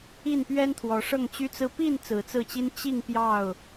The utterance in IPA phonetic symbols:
i˥˨npɥɛ˦nt̪ʰwɔ˨˦ ʂɤ˥˨ŋt͡ɕy˦t͡sɹ̩˦ pi˥˨n t͡sɹ̩˨˦t͡sɹ̩˥˨t͡ɕi˦n t͡ɕi˥˨ŋ pjɑ˥˨ʊ̯

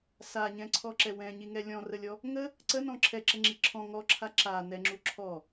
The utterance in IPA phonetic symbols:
saɲɛ̃ǀʰɔǁɛ wɛ̃ɲiŋɛ lʲɔ̃rəlʲɔ | ŋə | ǀənɔ̃ ǁʰɛǁəŋ͡ǁi ǁʰɔ̃ ŋɔǁʰa ǁa nɛŋ͡ǁu ǁʰɔ

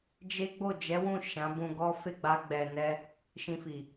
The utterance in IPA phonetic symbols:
d͡ʒe˦ ɡ͡bo˦˨d͡ʒɛ˨˦wũ˦˨ ʃã˨˦bũ˧ɡɔ˦ fe˦˨ɡ͡ba˧ɡ͡bɛ˨nɛ˧ | ʃĩ˧fi˨

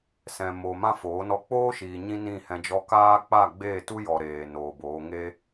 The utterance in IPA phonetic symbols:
sɛ̃˨mo˨ mã˦foː˨˦ nɔ˧k͡poː˦ʃiː˨ ɲĩ˦nĩ˦˨hɛ̃˧ d͡ʒɔ˧kaː˦ k͡pa˦˨ɡ͡beː˦˨tu˦jɔ˨ ɾeː˨noː˨boː˨˦ ŋe˦

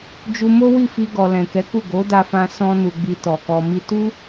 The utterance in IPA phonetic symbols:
d͡ʒu˧mo˦wi˦˨fi˧ ɡɔ˨lɛ̃˨kɛ˨˦ku˦˨ ɡo˨˦da˧fã˧ sɔ̃˦nu˧ɡ͡bi˧ tɔ˨kɔ˧mi˦ tu˦

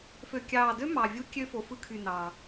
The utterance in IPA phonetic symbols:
fø˨˩kʲɑː˨˩dø˦˥ mɑ˨˩vʲu˦˥kʲø˦˥ fo˨˩fɯ˦˥kʰy˨˩ nɑ˨˩

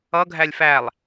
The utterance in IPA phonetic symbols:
ʌɡʱælʲ fælˠ

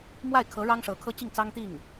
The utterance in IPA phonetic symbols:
mwa˥˩ɪ̯kʰɤ˧˥ ɻɑ˥ŋʂɤ˧˥ kʰɤ˥t͡ɕi˥˩ŋ t͡sɑ˥ŋt̪i˥˩ŋ

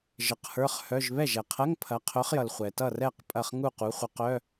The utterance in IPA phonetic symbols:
ʒə˨˥qhə˞˧˥˧χ hœ˧˥˧ʒ βɛ˥˩ʒɛ˩qʰɐ˧˥˧ŋ pʰɐ˨˥qʰœ˨˥χjʌ˩lχʷɛ˩ tʌ˥˩rɛ˥˩q pʼɐ˥˩χ ŋu˥˩ qu˨˥χʷə˨˥qœ˧˥˧

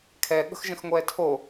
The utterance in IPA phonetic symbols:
kʰɛɠə̤xʒə̃x ŋʷɛtʰo

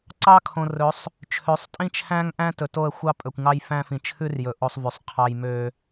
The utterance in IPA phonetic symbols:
ǀɑ˦kʰõ˨rɵ˨˦sˤ | t͡ʃʰø˨˦sˤtʼĩ˦t͡ʃʰæ̃˦ŋ ʔæ̃˦ tɵ˨to˦˨ə̯xʷɑ˦pʼɵ˨kʷ ŋɑ˦jfæ̃˦fĩ˨ t͡ʃʰʉ˦rjɵ˨ ʔo˦sˤvy˨sˤqʰɑ˦j mø˦

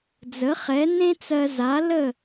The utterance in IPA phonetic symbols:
d͡zə˩˥χɛ˩˥nẽ˥t͡sɜ˧ za˩˥lə˥˩

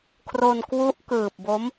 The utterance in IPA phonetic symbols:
kʰro˧nkwu˦˥ʔ kɯː˨˩p̚bo˦˥m

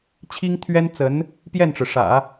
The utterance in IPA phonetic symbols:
t͡ɕʰi˥ŋt̪ʰɥɛ˥nt͡sə˧˥n | pjɛ˥˩nʈ͡ʂɻ̩˩ʂä̰˨˩˦

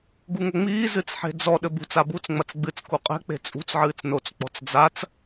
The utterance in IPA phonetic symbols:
ɡuŋoŋ͡miː zɨt͡sħe̤d͡zɔ ɗɘbṳt͡s abut͡s ŋ͡mɐt͡sɡ͡bɨt͡s kuqʼɛ̤ k͡pe̤t͡sʼṳt͡s ʕɨːt͡snot͡s k͡pɔ̤t͡sd͡zat͡s

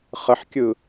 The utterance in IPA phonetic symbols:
χəħkʲɯ

